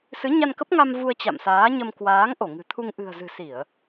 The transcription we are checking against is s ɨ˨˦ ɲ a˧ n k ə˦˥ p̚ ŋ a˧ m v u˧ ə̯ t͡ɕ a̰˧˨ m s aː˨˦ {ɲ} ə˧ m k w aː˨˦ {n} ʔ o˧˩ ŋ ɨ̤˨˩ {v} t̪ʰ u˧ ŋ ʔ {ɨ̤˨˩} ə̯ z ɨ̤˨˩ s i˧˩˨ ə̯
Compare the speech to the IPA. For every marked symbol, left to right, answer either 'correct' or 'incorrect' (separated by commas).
correct, incorrect, incorrect, correct